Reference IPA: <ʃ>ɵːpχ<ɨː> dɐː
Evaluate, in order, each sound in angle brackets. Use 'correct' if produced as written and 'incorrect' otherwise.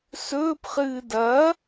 incorrect, correct

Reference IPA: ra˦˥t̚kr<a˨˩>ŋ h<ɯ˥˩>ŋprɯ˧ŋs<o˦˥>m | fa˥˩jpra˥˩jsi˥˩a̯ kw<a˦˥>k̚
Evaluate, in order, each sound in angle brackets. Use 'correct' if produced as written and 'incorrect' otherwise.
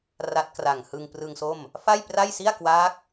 correct, incorrect, incorrect, incorrect

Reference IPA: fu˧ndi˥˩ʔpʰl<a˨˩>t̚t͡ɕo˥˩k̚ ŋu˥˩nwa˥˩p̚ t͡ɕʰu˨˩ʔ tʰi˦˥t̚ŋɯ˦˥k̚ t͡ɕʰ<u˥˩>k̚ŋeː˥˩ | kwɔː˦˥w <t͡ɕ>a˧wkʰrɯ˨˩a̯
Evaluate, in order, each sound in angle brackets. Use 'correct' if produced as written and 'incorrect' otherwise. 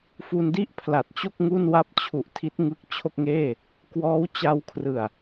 correct, incorrect, correct

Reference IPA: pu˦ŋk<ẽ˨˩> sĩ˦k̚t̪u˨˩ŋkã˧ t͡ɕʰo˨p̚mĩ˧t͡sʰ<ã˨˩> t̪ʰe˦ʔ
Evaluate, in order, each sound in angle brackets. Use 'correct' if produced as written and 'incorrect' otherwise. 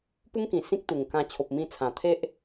incorrect, correct

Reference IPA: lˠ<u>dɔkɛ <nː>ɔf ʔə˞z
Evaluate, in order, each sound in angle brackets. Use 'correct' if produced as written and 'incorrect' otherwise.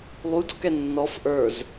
correct, correct

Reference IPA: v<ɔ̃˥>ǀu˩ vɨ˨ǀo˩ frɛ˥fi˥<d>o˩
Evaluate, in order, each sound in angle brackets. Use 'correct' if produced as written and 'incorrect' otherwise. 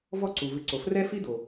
incorrect, correct

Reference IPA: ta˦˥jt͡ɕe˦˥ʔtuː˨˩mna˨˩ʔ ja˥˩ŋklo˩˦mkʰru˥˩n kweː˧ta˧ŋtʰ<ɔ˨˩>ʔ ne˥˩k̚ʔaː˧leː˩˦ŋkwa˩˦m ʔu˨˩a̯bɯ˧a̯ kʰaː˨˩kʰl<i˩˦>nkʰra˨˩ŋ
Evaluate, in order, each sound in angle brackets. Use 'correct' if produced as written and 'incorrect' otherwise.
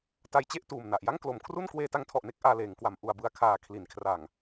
correct, correct

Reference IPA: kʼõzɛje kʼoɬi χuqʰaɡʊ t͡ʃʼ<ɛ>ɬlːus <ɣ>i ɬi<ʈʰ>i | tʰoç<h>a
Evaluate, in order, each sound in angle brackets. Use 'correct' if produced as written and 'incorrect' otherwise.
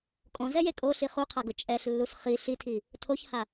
correct, incorrect, incorrect, correct

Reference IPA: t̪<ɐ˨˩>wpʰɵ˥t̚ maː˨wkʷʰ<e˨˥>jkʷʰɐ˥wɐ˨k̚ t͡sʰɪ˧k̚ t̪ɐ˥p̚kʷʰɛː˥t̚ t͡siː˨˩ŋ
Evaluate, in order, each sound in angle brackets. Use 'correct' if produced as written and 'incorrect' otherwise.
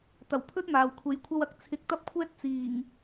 correct, correct

